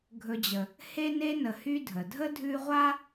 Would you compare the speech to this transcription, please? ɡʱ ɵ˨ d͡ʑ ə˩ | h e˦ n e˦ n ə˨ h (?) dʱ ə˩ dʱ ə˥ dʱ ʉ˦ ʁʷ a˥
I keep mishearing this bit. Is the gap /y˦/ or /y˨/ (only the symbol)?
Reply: y˦